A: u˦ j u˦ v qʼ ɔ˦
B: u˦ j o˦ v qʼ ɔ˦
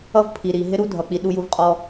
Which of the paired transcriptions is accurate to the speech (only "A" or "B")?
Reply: A